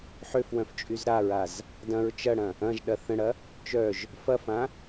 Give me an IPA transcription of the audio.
ħøf wœ̃ft͡ʃʼyzɾaɹaz | dɐ̃ɹ t͡ʃɐɽɐ̃ | ɐ̃ʒɗɐ θə̃ɽɐ | t͡ʃœʒ | fɐfã

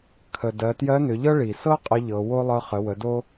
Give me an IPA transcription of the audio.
kʰə˩ dɜ˩˧tjɜ˧˥nʏ˩˧ʎɤ˥ ɭi˩ sɤ˥ qʼə˧˥ʎɤ˩˧wo˥ lˠɤ˧χə˩˧wə˩˧ do˥

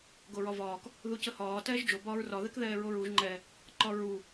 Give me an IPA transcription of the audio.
ɡoɹɒvɒːk | ðucəhɒː tɛːʒd͡ʒo bɒːɹrɒ ðɛkðɛːɹoɹuʒ ŋ͡ǃɛ | ǃɒɹu

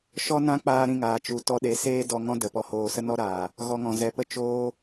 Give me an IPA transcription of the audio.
ʃɔ˦nã˦ k͡paː˦ɾĩ˧ŋaː˨ t͡ʃu˨tɔ˧ ɗe˨˦seː˦ dɔ˧ ŋɔ̃˦də˨pɔ˧hoː˧ sə˦nɔ˦ɾaː˨ | ɣɔ˧ŋɔ̃˨zɛ˧pə˦ t͡ʃoː˦

